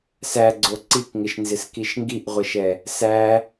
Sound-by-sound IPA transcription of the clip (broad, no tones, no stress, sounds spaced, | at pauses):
s æ ɡ͡ǀ o ǀ i k ŋ ɪ ʃ n z ɪ s k i ʃ ŋ ɡ i ʔ ʁʷ ɪ ʃ ɛ | s æ